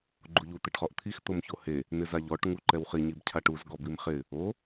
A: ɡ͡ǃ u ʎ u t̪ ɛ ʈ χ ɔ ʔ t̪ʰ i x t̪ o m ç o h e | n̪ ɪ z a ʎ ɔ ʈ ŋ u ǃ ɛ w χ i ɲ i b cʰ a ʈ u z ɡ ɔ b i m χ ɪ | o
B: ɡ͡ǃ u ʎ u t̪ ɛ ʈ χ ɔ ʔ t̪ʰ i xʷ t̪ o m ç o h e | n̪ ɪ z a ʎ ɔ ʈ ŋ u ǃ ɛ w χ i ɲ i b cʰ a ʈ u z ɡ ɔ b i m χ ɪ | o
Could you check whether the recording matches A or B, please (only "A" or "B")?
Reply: A